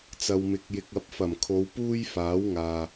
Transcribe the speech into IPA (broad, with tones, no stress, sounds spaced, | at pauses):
t͡s ɐ˧ w m ɪ˧ k̚ j ɪ˧ k̚ ɐ˧ p̚ f ɐ˨˩ m kʰ o˨˧ w p uː˥ j f aː˨˥ w ŋ aː˨